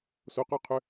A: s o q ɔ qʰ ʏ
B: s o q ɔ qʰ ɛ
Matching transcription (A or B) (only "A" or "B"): A